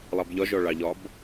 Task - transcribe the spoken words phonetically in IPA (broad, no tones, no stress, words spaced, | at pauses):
lˠɑbʎɒ ʒɔɭɑʎɒb